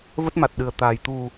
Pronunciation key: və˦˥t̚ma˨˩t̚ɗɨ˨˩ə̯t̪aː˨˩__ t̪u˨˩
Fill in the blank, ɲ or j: j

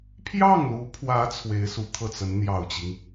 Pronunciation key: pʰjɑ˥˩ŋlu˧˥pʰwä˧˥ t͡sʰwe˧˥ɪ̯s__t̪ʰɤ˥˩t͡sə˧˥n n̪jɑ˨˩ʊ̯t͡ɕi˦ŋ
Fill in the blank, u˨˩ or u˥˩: u˨˩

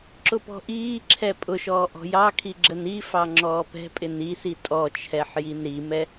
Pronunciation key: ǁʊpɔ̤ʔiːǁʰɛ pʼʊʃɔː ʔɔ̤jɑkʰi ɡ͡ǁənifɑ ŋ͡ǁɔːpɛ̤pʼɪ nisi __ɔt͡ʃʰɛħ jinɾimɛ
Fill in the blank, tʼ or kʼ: tʼ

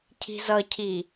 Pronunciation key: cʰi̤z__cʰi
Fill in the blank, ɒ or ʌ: ʌ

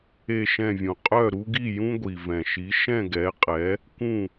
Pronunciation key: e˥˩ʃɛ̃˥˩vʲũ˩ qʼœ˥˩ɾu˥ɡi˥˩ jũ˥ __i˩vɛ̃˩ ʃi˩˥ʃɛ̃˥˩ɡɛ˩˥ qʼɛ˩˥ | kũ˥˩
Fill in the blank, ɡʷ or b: ɡʷ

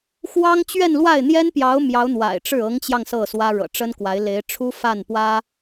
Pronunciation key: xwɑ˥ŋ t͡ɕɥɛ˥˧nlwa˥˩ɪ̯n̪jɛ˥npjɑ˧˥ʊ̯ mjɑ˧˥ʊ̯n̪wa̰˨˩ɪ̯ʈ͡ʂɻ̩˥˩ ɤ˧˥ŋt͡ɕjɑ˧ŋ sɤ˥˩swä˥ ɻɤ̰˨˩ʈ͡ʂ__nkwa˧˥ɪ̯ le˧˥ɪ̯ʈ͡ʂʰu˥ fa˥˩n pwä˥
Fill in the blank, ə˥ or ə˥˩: ə˥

